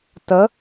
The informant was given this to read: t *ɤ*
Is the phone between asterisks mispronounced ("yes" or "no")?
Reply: no